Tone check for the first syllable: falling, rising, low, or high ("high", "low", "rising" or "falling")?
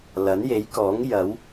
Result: rising